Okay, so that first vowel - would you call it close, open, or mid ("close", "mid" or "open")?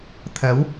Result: open